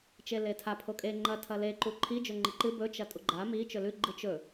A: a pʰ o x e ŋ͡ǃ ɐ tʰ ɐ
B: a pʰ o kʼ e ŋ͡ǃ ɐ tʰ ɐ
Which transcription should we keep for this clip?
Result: B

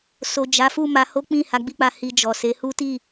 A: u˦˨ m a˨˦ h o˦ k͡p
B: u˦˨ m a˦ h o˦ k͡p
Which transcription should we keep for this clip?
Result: A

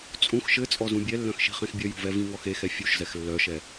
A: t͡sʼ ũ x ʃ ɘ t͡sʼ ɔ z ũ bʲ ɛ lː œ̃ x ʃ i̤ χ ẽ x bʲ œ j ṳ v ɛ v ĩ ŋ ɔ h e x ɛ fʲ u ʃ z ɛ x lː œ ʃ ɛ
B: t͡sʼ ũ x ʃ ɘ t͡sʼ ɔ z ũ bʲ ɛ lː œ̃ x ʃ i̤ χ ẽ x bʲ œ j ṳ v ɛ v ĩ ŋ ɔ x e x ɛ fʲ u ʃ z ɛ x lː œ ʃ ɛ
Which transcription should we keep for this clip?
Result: B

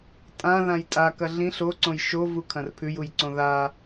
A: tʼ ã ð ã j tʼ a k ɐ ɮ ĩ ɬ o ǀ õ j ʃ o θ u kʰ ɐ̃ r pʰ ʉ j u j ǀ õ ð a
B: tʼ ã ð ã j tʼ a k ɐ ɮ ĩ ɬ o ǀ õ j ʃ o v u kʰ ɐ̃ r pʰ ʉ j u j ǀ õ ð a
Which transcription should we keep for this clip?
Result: B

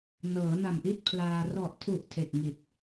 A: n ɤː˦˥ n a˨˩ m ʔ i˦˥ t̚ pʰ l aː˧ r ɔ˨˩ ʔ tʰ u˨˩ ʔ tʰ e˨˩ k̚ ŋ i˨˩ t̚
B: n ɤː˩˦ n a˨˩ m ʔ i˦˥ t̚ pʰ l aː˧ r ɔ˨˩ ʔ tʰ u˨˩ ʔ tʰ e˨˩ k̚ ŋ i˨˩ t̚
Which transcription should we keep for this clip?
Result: B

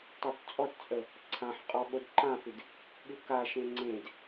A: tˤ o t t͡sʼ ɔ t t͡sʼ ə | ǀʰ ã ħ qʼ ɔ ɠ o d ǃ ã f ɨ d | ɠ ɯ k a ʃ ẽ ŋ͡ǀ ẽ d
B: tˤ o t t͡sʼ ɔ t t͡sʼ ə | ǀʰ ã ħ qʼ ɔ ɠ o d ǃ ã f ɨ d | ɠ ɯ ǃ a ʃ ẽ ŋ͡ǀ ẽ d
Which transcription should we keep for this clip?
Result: A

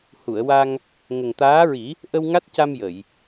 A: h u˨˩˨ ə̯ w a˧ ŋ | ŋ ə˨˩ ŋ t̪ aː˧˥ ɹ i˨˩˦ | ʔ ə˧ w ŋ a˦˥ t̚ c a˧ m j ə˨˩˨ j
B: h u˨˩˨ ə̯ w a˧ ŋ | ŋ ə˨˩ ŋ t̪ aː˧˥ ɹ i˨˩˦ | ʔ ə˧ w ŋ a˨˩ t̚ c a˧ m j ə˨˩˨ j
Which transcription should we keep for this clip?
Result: A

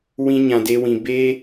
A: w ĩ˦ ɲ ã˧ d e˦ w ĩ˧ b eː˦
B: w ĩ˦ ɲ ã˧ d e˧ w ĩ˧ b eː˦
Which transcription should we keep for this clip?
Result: A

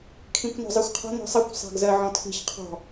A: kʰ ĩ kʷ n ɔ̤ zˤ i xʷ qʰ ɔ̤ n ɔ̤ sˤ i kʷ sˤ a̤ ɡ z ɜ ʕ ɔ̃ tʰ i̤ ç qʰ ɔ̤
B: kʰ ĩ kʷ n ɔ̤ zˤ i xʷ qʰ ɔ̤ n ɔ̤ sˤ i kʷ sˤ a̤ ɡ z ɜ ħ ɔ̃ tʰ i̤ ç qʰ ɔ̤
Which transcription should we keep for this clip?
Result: A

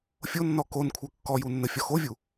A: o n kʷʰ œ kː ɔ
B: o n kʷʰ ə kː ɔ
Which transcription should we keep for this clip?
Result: A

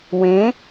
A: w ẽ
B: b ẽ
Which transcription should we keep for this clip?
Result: A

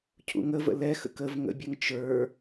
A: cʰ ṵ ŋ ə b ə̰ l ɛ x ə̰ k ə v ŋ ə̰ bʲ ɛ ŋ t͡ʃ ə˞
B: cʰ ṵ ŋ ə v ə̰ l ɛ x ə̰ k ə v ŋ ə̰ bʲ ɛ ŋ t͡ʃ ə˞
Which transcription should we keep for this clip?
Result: B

